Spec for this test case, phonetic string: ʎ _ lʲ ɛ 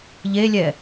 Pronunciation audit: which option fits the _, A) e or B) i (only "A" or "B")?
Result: A